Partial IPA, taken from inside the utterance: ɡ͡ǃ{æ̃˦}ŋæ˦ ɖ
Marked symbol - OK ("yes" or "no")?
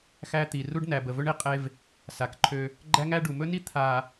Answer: no